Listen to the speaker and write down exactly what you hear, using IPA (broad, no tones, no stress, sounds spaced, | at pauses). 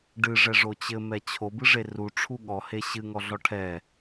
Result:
ɖ ɨ ʐ ɛ ʐ o t͡ɕ ɘ m ɛ t͡ɕʰ o b ɨ ʐ e r u ʈ͡ʂʰ u ɠ ɔ h e ɕ ɨ ŋ ɔ ɮ ɔ ʈʰ ɛ